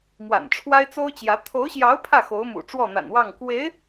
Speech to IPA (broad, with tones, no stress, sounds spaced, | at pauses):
m w a̰˨˩ n ʈ͡ʂʰ w a˥ ɪ̯ t͡s o˥ ʊ̯ t͡ɕ j ä˧˥ t̪ʰ o˧˥ ʊ̯ ɕ j ɑ˧˥ ʊ̯ pʰ ä˥˩ x o˧˥ ʊ̯ m ṵ˨˩ ʈ͡ʂ w ɔ˥˩ n̪ a̰˨˩ n w ɑ˥˩ ŋ k w e˧˥ ɪ̯